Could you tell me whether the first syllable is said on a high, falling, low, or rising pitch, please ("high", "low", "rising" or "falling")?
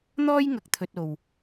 high